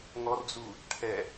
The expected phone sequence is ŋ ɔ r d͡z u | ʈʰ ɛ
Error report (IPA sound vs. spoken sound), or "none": none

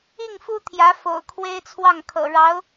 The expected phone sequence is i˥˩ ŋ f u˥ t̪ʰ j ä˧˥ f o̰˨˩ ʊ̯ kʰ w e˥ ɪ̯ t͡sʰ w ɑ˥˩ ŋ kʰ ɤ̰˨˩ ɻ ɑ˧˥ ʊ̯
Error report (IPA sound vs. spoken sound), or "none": none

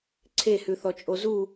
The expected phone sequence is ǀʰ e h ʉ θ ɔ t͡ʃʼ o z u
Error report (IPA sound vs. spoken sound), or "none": none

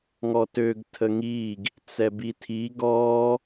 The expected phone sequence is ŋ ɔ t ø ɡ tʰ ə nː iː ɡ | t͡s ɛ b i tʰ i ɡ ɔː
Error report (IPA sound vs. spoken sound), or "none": nː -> ŋ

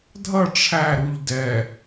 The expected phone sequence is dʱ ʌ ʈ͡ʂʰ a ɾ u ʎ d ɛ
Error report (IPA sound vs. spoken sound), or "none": a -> æ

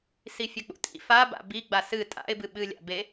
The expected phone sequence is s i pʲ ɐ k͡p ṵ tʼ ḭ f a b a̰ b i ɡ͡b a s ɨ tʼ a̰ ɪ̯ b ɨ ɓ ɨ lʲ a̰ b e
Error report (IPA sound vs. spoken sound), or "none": pʲ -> fʲ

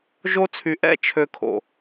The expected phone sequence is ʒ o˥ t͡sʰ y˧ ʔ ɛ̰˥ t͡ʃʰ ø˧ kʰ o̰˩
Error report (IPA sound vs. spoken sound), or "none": none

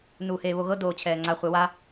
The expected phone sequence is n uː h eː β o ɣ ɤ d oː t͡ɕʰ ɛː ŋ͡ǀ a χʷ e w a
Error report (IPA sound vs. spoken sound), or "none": none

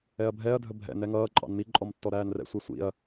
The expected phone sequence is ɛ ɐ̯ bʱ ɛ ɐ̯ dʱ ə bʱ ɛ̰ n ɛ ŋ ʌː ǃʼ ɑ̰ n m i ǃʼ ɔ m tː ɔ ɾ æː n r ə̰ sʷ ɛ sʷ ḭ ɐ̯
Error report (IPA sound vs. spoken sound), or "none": ə̰ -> ɛ̰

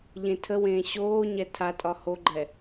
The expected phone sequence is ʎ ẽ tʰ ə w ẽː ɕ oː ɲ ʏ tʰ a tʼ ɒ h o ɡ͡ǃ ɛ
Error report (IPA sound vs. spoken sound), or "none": ʏ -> ɛ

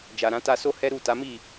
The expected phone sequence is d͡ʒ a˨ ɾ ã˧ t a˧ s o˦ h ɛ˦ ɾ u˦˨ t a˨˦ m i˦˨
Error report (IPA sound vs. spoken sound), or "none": none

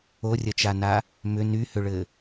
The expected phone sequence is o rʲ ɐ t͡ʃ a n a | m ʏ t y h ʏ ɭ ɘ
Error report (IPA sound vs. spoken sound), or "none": t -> n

